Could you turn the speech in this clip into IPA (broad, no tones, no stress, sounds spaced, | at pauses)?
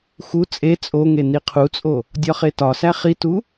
x u t͡sʼ e t͡sʼ o ŋ e n i qʰ u t͡sʼ o | dʲ ɒ χ e t ɒ s æ χ i t u